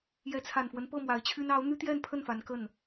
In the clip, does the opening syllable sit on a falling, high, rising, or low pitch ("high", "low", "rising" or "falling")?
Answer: rising